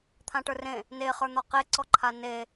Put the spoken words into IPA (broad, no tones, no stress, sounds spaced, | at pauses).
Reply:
t̪ʰ ã ʈ ə˞ r ẽ | n e χ ə˞ n̪ ɒ q e ǀ ɔ ǃʰ a n e